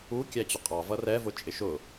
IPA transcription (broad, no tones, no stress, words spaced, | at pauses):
ukʲæ t͡ɕʊqʼɑvʌ rɛvʊ t͡ʃʼɪʃʊ